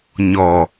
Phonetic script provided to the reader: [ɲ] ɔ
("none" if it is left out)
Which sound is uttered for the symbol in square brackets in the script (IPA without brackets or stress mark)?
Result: ɲ